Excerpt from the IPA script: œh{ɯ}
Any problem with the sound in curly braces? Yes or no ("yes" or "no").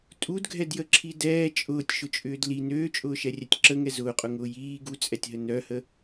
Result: yes